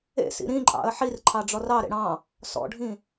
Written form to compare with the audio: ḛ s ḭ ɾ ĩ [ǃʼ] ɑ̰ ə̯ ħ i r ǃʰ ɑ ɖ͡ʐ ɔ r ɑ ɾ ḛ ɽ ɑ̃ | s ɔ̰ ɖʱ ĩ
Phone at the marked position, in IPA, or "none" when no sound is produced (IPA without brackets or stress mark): ǃʼ